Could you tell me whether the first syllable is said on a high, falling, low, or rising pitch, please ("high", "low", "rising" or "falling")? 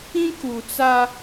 high